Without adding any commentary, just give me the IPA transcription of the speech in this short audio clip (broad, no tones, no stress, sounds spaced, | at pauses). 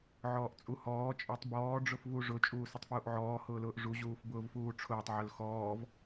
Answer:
ʕ ɔː ʔ t͡sʼ u h ɔː t͡ʃʼ ɔ tˤ b ɔː ɖ͡ʐ ʊ f v u ʐ ʊ t͡ʃʼ uː s ʊ tˤ f w u ʔ ʕ ɔː h ʊː l ʊː ʔ ʐ u ʑ uː f b ʊː v f uː ʈ͡ʂʰ ʊː tˤ ʕ ʊ l x ɔː v